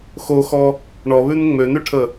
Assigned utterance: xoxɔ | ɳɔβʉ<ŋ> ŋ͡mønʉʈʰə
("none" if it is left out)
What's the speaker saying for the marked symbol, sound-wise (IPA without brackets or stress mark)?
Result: n